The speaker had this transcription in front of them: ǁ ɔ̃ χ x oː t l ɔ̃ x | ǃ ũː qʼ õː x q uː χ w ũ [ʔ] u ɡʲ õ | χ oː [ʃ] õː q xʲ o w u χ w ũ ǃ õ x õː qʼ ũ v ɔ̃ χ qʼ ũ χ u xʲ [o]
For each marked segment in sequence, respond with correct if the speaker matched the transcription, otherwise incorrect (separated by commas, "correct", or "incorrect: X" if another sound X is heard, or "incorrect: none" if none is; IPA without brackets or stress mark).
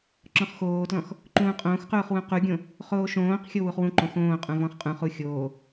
incorrect: q, correct, incorrect: oː